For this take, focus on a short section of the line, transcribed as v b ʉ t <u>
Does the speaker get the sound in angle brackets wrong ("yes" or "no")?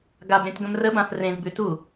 no